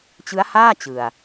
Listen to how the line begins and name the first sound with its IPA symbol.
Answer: t͡ɕ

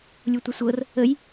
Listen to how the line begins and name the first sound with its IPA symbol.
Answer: lʲ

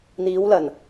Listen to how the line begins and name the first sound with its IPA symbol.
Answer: n̪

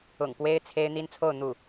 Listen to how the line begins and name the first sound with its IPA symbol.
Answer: ʊ̰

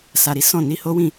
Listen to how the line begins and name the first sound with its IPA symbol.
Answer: s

